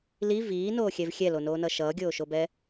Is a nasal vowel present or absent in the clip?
absent